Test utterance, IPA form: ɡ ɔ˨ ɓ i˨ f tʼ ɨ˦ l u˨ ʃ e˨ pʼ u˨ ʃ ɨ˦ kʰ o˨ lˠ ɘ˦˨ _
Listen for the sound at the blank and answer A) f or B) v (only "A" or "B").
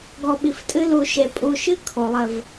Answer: B